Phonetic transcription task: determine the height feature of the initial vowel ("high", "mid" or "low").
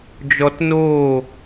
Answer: mid